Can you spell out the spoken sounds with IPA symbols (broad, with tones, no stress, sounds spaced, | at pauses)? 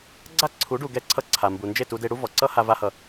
ɡ͡ǀ a˦ ǀʰ u˨˦ ɖ u˨ ɡ ɛ˧ ǀʰ ʌ˧ ǀʰ a˨ m b u˨ n d͡ʒ e˦˨ t u˧ d e˧ ɽ u˦ v ɔ˨ ǀ ʌ˦ h a˧ v a˦ h ʌ˧